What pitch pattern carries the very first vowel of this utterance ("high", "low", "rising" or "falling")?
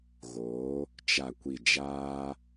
rising